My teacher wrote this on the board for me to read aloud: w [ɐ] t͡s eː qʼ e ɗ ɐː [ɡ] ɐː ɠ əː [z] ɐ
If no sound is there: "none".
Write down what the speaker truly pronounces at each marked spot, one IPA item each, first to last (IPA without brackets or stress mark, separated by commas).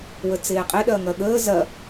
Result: ə, ŋ, z